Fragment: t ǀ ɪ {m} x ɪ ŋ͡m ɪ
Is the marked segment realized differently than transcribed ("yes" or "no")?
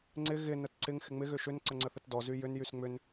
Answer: yes